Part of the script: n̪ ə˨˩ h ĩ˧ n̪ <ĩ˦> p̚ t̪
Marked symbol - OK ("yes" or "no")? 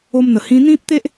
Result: yes